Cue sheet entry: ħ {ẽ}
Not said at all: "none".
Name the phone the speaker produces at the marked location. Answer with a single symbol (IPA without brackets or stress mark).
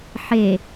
e